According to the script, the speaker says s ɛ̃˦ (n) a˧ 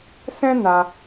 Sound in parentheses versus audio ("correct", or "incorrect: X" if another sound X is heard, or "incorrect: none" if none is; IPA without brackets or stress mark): correct